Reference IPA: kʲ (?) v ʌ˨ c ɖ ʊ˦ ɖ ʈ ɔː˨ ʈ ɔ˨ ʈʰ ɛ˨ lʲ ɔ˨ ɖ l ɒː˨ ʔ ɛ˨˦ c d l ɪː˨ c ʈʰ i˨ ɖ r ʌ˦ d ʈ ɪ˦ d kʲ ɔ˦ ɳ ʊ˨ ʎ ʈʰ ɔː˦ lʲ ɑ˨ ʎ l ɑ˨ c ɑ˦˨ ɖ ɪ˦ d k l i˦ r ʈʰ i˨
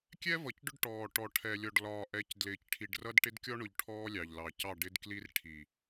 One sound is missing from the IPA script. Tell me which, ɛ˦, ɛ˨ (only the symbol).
ɛ˦